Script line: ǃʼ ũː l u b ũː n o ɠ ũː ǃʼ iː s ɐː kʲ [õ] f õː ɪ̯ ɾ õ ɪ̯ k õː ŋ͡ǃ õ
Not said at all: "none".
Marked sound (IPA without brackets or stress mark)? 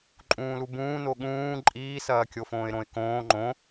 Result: o